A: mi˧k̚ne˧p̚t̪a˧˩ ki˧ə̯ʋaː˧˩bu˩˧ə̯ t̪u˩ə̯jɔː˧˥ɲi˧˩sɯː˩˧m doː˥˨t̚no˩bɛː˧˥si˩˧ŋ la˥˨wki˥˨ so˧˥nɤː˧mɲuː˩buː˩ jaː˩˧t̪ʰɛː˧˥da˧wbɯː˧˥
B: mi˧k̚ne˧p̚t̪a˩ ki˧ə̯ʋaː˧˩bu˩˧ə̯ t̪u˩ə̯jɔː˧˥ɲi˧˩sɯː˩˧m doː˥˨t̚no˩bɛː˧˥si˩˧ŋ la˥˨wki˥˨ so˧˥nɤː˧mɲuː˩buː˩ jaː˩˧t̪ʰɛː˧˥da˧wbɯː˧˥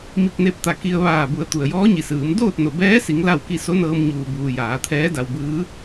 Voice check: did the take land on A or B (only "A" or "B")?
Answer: A